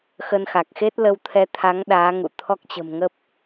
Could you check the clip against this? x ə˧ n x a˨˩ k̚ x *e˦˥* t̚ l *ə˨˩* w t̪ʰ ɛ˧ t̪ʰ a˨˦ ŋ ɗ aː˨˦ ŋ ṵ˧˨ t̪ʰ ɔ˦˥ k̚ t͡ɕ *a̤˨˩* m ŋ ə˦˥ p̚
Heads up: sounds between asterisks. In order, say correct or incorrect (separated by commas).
correct, incorrect, incorrect